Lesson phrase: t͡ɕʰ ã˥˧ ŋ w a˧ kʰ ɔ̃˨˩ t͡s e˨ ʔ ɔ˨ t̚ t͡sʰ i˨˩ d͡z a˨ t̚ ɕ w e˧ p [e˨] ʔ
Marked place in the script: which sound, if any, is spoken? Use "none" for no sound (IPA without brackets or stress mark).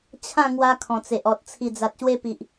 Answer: i˨